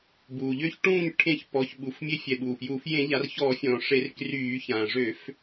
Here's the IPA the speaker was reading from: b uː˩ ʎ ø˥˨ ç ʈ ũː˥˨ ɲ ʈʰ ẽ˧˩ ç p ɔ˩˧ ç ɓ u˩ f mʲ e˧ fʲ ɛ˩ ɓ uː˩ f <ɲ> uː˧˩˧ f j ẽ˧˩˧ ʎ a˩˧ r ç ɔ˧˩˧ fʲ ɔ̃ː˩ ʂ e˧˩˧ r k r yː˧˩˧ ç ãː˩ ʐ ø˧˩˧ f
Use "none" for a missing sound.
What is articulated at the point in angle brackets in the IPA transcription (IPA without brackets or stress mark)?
j